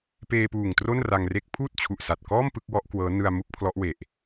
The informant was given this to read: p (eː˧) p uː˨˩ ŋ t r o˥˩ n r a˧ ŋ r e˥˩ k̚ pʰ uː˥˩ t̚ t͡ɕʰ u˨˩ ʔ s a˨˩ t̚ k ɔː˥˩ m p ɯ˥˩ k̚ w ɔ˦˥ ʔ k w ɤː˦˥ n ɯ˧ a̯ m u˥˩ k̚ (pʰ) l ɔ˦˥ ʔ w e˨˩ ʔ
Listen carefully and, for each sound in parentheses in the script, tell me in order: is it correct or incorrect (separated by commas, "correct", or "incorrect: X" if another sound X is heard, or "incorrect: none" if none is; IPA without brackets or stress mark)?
correct, correct